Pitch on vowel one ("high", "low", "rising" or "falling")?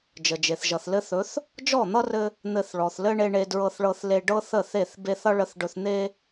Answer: low